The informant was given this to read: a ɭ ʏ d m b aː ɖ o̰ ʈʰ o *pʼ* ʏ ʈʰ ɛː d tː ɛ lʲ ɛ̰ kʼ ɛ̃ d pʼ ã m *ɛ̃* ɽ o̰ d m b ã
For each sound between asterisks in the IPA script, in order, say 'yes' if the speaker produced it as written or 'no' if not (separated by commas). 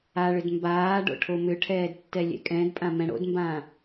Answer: no, yes